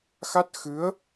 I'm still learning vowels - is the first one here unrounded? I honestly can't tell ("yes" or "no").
yes